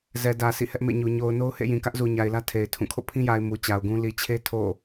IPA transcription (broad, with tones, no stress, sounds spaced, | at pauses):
z ɛ˨ d ä˨ s ḭ˦˨ h ɛ˦ ʔ m ḛ˦˨ ɲ u˨ ɲ o˨ ʊ̯ n o˦ ʊ̯ h ḛ˦˨ j ĩ˨ k ä˦ ʔ z u˨ ɲ a˨ ɪ̯ l ä˦ tʰ e˨ ɪ̯ tʰ ũ˦˨ kʰ o̰˦˨ pʰ ĩ˦ j a˨ ɪ̯ m u˨ t͡ɕ a˨ ʊ̯ ɡ ũ˦ l i˨ t͡ɕʰ e˦ tʰ o̰˦˨